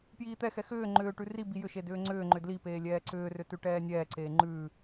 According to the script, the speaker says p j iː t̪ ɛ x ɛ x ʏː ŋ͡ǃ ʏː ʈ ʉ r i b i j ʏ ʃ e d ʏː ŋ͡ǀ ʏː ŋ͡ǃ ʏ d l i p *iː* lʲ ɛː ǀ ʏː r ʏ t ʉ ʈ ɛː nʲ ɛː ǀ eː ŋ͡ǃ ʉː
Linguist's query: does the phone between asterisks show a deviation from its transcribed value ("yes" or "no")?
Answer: yes